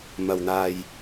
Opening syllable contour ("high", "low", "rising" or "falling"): low